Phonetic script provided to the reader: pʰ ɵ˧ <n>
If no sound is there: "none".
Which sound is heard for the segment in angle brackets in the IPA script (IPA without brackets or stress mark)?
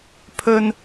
n